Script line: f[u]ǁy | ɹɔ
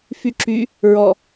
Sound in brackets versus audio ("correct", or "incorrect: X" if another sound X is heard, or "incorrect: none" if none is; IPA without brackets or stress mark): incorrect: y